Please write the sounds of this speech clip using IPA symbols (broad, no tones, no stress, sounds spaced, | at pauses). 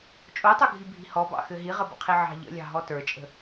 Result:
t͡ʃʼ o tˤ o ɡʱ i bʱ i̤ h ɔ b ɑ̰ x ɘ ɦ i ʁ ə b ə̰ qʰ i ʕ ɑ̤ ʎ ə̰ lʲ ɑ̤ ɦ ɔ t ə˞ t͡ʃʼ ə̤